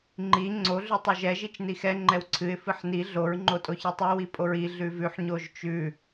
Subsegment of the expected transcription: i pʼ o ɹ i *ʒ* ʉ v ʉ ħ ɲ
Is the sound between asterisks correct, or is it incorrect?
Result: incorrect